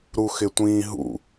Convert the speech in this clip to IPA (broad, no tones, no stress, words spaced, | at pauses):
ɾuxɪtʷĩːɦṵ